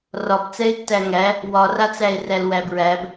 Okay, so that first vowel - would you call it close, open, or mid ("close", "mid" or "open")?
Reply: open